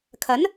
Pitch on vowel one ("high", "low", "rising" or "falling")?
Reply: rising